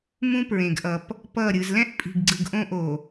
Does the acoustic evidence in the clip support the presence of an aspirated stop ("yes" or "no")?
no